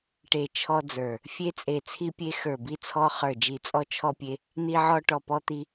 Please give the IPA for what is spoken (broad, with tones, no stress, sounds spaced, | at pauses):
ʈ e˨˩ t͡ʃʰ ɔ˧ d͡z ə˞˨˩ | fʲ e˧ t͡sʼ e˨˩ t͡sʰ i˧ pʲ e˧ x ə˞˨˩ b i˧ t͡sʰ ɔ˧ χ ə˞˨˩ d͡ʒ i˨˩ t͡sʼ ɔ˧ t͡ʃʰ ɔ˧ pʲ e˧ | n̪ i˧ ʕ ɔ˧ ʈ ɔ˨˩ p ɔ˧ t̪ i˧